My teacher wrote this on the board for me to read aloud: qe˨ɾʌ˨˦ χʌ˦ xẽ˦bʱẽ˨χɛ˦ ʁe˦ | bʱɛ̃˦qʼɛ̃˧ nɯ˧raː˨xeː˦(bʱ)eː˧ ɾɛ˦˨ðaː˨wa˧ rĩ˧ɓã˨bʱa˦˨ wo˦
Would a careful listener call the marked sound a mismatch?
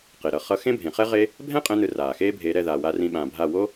no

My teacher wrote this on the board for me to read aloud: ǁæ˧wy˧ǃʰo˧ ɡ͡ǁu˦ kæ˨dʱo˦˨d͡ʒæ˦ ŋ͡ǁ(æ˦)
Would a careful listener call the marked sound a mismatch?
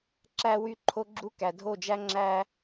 no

